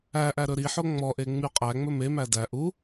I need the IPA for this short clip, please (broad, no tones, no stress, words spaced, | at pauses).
æʔæ ɾɵɾiħo ŋ͡mɔʔe ŋ͡myqʼæŋ͡mɵ memæ dæ ʔu